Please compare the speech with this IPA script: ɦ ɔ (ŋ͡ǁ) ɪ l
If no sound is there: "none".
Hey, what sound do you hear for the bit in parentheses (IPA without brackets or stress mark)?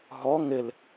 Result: ŋ